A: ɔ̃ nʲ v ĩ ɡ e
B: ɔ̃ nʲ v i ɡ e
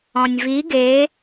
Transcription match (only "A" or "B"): B